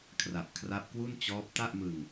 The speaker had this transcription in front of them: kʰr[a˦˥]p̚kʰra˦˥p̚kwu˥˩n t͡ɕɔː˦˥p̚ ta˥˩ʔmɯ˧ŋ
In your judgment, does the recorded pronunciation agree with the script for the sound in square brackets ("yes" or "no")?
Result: no